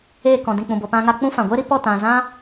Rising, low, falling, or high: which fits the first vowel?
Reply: falling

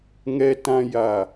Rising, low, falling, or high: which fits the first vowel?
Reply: low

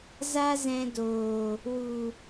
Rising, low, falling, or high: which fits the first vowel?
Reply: high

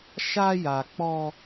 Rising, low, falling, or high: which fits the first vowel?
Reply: high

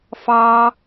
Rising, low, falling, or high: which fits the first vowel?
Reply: high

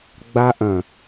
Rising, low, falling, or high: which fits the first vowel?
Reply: high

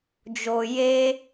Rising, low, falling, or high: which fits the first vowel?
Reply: low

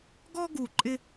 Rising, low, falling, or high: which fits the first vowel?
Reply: high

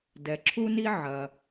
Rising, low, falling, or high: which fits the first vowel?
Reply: low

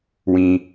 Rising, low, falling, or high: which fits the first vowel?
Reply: low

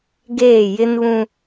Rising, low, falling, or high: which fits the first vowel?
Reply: falling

